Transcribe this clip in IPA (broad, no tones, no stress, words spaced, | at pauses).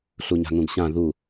ɬuɲa̤ŋũɡɕã ðu